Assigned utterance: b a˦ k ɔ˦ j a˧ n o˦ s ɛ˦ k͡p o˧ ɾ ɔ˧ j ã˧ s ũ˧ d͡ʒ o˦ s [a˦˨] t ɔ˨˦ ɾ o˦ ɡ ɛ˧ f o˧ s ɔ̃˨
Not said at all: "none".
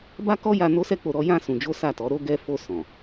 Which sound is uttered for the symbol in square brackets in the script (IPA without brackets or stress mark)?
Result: a˦˨